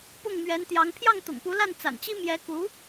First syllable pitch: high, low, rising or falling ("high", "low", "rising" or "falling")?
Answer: falling